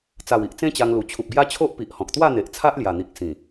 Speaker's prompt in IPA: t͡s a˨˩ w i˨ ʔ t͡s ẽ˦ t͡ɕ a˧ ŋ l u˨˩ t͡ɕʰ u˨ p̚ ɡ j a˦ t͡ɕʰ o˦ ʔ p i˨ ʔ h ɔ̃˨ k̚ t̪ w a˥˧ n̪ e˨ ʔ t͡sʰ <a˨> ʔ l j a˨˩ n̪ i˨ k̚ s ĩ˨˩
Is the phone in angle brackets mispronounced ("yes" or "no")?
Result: yes